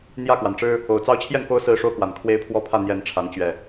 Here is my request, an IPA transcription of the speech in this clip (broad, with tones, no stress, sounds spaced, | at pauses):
n̪ j ä˥˨ k w a˩ n ʈ͡ʂ ɻ̩˦ | o˨˩ ʊ̯ t͡s ɑ˦ ʊ̯ t͡ɕʰ j ɛ˥˨ n k o˦ ʊ̯ s ɹ̩˦ ʂ o˦ ʊ̯ k w a˨˩ n kʰ w e˦ ɪ̯ pʰ w ɔ˦ pʰ ä˥˨ n̪ j ɛ˨˦ n ʈ͡ʂʰ a˨˦ n t͡ɕ ɥ ɛ˨˩